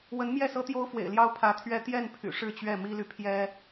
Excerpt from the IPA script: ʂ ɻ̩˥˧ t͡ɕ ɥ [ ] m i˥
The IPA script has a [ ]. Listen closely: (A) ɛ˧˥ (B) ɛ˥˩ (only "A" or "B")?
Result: B